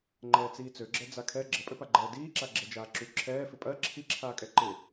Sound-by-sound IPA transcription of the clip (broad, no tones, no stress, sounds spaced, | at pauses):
ŋ͡ǃ ɛː t͡s iː t͡s ø ɡ͡ǁ ɛ d͡z a kʰ ɛ ɡ͡ǁ ə pʼ ø p a ɡ͡ǃ ɛː d iː ǁ a ɡ͡ǁ e d͡ʒ aː ǁ y ǁʰ ɛː f ɪ pʼ ɜ ǁʰ i ǁʰ aː kʼ ɛ ǃ ɪ